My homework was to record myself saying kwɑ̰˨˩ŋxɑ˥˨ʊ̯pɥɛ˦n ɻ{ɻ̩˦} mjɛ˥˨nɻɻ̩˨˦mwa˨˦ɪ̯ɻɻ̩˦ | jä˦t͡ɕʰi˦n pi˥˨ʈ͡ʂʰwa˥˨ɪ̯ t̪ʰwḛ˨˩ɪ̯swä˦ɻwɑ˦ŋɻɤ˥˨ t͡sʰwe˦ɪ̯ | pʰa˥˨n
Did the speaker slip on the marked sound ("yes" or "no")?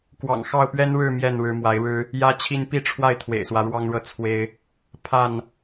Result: yes